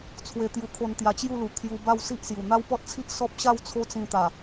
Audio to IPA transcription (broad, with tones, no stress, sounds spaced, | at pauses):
t͡sʰ w e˧ t̪ j u˧ kʰ o˧ n t̪ j a˧ t͡ɕ j u˥˧ l u˨˩ kʰ j u˧ b a˥˧ w s i˦ ʔ s j u˨˩ n̪ a˦ w p ɔ˦ t̚ t͡sʰ i˦ ʔ s ɔ˦ p̚ ɕ a˥˧ w t͡sʰ o˦ t͡s ĩ˧ t̪ a˨˩